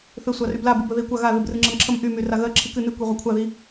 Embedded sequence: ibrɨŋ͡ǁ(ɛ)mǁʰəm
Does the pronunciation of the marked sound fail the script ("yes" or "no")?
yes